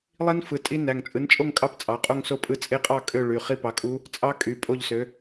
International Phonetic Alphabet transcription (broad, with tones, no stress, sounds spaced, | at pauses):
lˠ i˦˥ n f ɯ˩˧˩ tʼ i˦˥ n æ˩˧˩ ŋ t͡sʼ ɯ˨˥ n t͡ʃʼ o˥˧ ŋ kʼ ɑ˥˧ p t͡sʼ ɑ˩˧˩ qʼ o˥˧ ŋ s o˥˧ pʼ ɯ˥˧ t͡sʼ e˦˥ qʼ ɑ˥˧ kʼ ø˥˧ ɭ y˩˧˩ χ i˥˧ p ɑ˨˥ kʼ u˦˥ | t͡sʼ ɑ˦˥ kʼ y˩˧˩ pʼ o˥˧ ʎ s ø˨˥